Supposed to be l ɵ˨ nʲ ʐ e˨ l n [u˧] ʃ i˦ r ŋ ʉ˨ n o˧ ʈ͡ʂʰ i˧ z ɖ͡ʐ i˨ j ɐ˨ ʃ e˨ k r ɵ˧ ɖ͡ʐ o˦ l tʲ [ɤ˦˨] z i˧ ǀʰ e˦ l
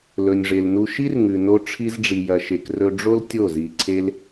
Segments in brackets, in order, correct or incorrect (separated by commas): correct, incorrect